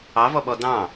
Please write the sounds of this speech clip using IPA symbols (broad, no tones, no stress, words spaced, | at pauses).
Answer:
ɑvɔɓɔ dɑ̃